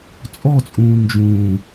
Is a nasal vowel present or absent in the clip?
present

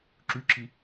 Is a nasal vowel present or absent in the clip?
absent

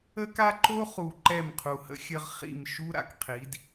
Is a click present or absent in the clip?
present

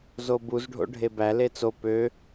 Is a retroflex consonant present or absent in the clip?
present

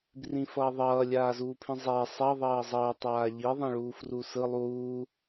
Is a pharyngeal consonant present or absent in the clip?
absent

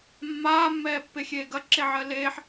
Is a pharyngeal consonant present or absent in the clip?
present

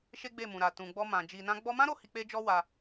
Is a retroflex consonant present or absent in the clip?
absent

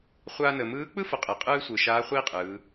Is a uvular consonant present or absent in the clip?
present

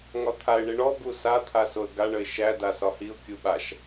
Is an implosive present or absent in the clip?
present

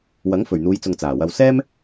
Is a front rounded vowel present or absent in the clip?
absent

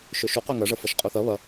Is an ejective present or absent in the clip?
present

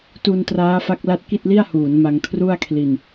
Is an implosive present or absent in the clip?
absent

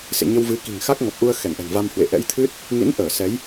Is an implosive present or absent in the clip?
absent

